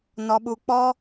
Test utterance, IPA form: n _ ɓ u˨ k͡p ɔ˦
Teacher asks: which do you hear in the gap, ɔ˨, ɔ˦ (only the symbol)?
ɔ˨